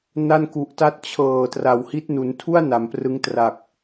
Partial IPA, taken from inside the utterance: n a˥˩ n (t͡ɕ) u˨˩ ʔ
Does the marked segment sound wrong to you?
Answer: yes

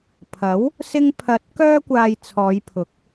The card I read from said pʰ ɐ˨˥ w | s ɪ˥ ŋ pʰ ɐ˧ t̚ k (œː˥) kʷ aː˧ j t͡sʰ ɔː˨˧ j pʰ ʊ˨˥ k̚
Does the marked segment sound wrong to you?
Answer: no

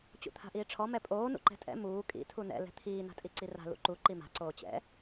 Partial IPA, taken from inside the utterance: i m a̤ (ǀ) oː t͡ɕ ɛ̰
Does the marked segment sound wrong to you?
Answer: no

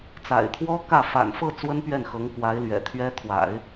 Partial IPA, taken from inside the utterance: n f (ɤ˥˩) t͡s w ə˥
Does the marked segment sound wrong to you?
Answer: no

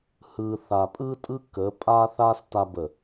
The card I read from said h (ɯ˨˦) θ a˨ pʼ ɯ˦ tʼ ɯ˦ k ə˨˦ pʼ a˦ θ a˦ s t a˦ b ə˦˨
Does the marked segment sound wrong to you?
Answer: yes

